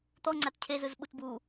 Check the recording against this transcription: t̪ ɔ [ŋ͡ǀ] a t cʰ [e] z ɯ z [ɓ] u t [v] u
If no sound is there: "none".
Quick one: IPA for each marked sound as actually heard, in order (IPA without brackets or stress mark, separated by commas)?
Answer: ŋ͡ǀ, e, ɓ, b